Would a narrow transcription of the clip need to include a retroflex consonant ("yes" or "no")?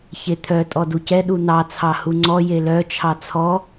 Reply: no